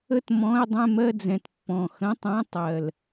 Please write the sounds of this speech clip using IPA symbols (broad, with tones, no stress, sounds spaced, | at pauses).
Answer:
ə˥˧ t m ɔ̃˧˥˧ ɪ̯ dˤ ɛ̃˥˧ m ɜ˥˧ d͡z ɛ̃˨˩ t pː ɔ̃˨˩ x ə̃˧˥˧ tˤ ã˧˥˧ tˤ ɜ˨˩ l